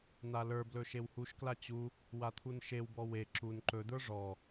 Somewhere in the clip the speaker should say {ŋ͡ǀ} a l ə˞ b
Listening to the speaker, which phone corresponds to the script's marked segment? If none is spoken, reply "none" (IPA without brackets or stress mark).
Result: n̪